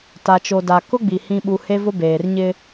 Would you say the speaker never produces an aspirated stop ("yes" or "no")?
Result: yes